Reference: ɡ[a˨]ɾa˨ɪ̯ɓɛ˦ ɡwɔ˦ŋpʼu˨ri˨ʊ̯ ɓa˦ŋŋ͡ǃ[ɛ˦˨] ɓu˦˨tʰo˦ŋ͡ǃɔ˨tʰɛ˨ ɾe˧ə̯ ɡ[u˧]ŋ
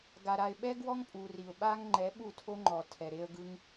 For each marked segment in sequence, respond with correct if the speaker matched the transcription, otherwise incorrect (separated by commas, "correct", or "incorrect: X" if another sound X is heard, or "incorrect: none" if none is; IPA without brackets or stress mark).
correct, incorrect: ɛ˨˦, incorrect: ɯ˧